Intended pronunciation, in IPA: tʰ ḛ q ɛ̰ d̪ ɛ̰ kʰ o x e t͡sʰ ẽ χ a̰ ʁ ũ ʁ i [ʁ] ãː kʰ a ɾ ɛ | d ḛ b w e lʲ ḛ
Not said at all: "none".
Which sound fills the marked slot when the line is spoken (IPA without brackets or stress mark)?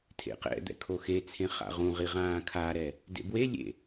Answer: ʁ